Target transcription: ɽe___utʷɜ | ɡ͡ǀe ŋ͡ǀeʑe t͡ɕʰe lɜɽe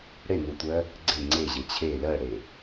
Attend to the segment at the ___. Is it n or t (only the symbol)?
n